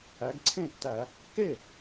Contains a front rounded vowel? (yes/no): no